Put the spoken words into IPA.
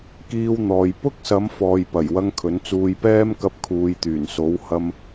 k iː˧ w n̪ ɔː˨ j p ʊ˥ k̚ s ɐ˨˧ m f ɔː˨ j p ɐ˨˩ j w ɐ˧ ŋ kʰ ɵ˨˥ n t͡s uː˧ j p ɛː˥ m k ɐ˧ p̚ kʰ uː˨ j t̪ yː˨˩ n s o˨˥ w h ɐ˧ m

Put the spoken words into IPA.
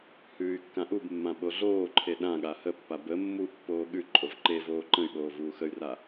h ʉː y̯ kː ã ʔ u b mː ã ɓ o ɮ oː ǃʰ e ɗ ã ɠ a h ə pː a b ə mː u pː oː ɠ ʉ ǃʼ o v ǃ e v oː ǃ ə̃ y̯ ɓ oː v uː x ə y̯ r a

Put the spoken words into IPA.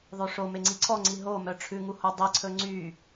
ðˤ ø ʂ o m e ŋ͡ǀ i ǀʰ ɔ ŋ͡ǀ i ɦ o m œ ʈ͡ʂʰ ʉ ŋ u h o dˤ i ǀʰ ɵ ŋ͡ǀ y

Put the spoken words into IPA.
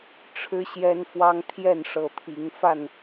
ʈ͡ʂʰ ɻ̩˦ ɕ j ɛ˦ n f w ɑ˦ ŋ t̪ʰ j ɛ˥˨ n ʂ ɤ˨˦ t̪ʰ i˨˦ ŋ f a˥˨ n

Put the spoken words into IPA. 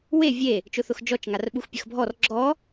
w e vʲ e | t͡ʃ ʊ θ ʊ x d͡ʒ ɔ t͡ʃ ŋ a r ɓ u x pʲ ə x bʱ ɔ r ɡ͡ǁ ɔ

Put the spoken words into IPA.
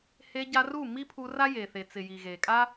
h e˧ ɟ a˧ r u˦˨ m i˦ pʰ u˧ r a˦ j e˨ θ e˨ t͡s ɪ˨ j i˨ ɣ e˨ kʼ a˦

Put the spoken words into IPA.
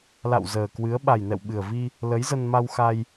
l a̰˧˨ w z əː˨˩ k w ɨ˨˦ ə̯ ɓ a˨˩ j n ɛ̰˧˨ w ɓ ɨ˨˩ ə̯ v i˧ | l ə˨˦ j z ə˧ n m a˧ w x a˧ j

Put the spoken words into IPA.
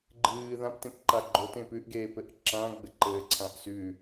ɡ͡ǃ ɨː ð ã p t ẽ p ǃ a ɡ͡ǃ o t ẽ p ʉ ʔ ɡ eː p ɘ ʔ ǁ ã ɡ͡b ɘ ǃ ɘː ǀʰ ã ʔ s ʉ

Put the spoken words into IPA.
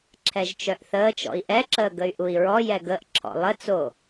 ǁʰ ɛ ʒ t͡ʃ œ ʔ θ əː t͡ʃ ɔ̰ i̯ ʔ ɛ ǁ əː ɡ ə y̯ ʔ u i̯ ɹ ɔ j ɛ ɡ ə ʔ ǁʰ ɔ̰ lˠ ə t͡s o

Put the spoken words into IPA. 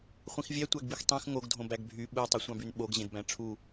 χʷ ĩ x vʲ æ tʷ æ ɡ b i x tˤ ẽ x ŋ o ɡ dʱ õ b æ ɡ bʱ y ɓ ɯ w tˤ o sʷ ɑ̃ b y n ɓ o ɡ ʑ ẽ d b æ̃ ʈ͡ʂʰ u

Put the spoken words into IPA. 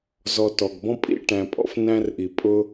z ɔ˨ t ɔ˩ ɡ b ɔ̃˦ pʼ ḭ˥ ʈ æ̃˨ pʼ ɔ̰˦ f n æ̃˦ r ʔ i˩ pʼ ʊ˦

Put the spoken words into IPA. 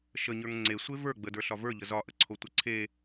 ʃ ə ɲ ə˞ ŋ ŋ͡ǀ e sʷ e v ə˞ ɡ͡b ə d ə˞ ɬ ɒ v ə˞ ʎ ə z ɒ ʔ ə ǀʰ o tʷ ə ǀʰ e

